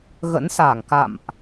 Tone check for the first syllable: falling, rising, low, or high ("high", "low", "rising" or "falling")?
rising